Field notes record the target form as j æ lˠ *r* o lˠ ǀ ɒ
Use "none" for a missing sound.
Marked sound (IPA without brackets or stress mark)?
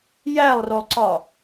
r